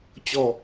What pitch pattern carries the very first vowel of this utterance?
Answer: low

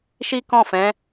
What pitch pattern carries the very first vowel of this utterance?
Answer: high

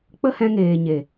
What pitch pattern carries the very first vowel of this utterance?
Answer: high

